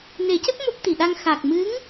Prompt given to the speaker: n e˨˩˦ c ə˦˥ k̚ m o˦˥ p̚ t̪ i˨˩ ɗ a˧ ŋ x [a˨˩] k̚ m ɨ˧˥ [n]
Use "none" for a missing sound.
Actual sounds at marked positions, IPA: a˨˩, ŋ

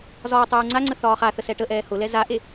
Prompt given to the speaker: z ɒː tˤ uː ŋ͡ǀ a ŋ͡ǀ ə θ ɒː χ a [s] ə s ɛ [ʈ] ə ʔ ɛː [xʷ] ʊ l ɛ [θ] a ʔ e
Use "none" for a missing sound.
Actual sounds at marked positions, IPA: θ, ʈ, h, z

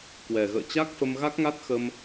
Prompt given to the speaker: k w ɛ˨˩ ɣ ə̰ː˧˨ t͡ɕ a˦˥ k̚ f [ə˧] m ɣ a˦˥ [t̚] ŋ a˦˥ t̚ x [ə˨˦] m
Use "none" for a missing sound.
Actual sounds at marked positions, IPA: ə˧, k̚, ə˧

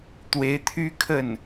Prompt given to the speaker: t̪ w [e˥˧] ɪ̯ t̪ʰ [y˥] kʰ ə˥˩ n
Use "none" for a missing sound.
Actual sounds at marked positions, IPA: e˧˥, y˥

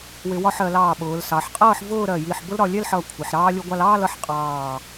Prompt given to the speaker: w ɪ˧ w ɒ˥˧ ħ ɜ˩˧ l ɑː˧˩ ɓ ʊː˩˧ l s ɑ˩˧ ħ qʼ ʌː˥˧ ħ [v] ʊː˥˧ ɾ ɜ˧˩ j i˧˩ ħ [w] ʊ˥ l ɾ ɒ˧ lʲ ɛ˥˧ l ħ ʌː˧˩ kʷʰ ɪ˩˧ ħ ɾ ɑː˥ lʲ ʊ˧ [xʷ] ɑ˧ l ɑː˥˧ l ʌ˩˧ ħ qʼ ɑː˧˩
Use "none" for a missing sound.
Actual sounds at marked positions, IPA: v, b, ɡʷ

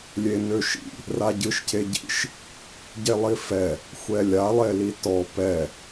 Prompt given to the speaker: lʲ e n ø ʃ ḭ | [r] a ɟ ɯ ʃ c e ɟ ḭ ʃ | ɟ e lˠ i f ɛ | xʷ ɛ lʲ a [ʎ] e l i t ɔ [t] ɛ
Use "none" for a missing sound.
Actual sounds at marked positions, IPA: r, lˠ, p

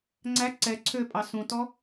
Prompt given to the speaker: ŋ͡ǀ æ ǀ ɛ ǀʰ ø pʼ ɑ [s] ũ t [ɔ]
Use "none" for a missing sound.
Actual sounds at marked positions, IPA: s, ɔ

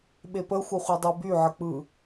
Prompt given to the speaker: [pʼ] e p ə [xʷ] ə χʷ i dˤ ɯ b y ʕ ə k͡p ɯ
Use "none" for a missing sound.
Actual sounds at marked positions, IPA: ɓ, xʷ

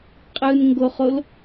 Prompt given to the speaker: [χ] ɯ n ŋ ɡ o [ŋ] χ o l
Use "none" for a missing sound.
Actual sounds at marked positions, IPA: qʼ, none

